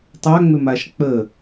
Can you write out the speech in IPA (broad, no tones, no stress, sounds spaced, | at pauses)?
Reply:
tˤ a ŋ͡m ʏ m a ʃ k͡p ə